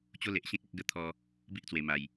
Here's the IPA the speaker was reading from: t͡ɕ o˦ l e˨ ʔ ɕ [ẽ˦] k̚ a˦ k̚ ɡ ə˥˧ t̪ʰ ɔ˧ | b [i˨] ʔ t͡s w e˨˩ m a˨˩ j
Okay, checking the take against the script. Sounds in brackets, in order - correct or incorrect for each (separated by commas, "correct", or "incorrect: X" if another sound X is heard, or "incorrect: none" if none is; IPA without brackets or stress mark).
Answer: correct, incorrect: i˦